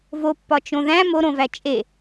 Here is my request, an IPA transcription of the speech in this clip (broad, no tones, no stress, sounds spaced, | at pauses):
v o pː ɒ t͡ʃ õ ð æ̃ m o ɾ õ v æ t͡ʃʼ e